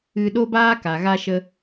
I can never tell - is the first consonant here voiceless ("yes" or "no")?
no